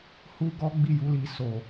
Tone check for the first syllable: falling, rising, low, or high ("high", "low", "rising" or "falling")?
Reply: high